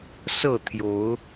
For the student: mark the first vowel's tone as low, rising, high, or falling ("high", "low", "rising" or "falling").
falling